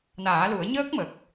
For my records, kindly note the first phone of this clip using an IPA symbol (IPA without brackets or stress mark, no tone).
n